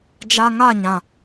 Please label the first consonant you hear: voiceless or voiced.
voiced